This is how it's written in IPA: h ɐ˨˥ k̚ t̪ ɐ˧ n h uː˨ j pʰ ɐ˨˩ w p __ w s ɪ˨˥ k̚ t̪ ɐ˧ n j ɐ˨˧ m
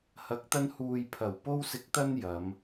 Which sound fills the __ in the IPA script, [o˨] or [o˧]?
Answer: o˧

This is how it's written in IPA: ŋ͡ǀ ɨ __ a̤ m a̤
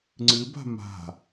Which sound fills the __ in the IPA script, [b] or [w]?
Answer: b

